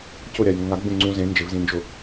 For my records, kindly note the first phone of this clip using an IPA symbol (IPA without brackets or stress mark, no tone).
c